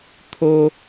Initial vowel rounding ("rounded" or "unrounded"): rounded